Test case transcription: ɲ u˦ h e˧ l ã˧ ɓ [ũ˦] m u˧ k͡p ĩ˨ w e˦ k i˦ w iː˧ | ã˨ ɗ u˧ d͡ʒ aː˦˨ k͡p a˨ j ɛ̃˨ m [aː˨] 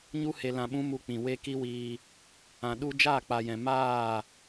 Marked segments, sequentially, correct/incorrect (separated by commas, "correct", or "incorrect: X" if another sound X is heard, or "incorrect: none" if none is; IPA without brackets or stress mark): correct, incorrect: aː˦˨